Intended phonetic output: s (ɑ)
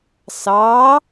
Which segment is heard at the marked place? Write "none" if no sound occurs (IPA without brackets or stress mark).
ɑ